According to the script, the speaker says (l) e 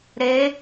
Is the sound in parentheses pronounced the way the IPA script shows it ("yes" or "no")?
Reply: no